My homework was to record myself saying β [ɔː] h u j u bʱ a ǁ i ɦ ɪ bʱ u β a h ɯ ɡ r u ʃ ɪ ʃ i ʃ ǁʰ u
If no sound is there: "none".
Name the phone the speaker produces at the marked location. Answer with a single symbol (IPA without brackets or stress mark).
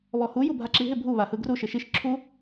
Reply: ɔ